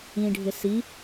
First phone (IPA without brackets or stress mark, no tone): ĩ